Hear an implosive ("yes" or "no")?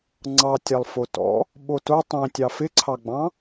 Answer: yes